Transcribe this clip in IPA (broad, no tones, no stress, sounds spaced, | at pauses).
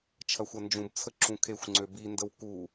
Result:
t͡ʃʰ ɐ xʷ ɐ n d͡ʒ ũ b t͡sʰ ə ǁ ũ kʰ e xʷ ŋ͡ǀ ø b i n d ə w k u